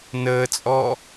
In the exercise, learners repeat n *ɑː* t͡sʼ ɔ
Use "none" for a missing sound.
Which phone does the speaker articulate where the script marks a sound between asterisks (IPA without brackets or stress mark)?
əː